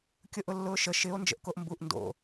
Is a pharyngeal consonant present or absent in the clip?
absent